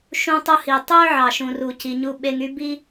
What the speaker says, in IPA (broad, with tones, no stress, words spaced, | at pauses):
ʃũ˧tˤu˧hi˩tˤø˥ ʕɑ˩ʃũ˩ru˩ci˩ ɲu˧ɓe˧ŋy˥bi˥